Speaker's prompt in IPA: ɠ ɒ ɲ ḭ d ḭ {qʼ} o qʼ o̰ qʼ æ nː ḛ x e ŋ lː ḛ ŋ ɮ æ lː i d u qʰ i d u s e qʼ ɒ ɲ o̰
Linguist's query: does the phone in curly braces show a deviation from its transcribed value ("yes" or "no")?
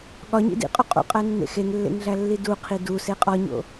no